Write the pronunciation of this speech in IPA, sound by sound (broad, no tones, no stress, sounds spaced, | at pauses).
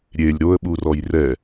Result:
ɾʲ e lʲ ɾ o ə̯ ɓ u r ɔ j r ɛ